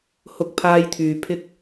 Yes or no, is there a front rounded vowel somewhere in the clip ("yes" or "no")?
yes